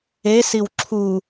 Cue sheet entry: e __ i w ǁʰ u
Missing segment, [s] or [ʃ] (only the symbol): s